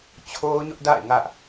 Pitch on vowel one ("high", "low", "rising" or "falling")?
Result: high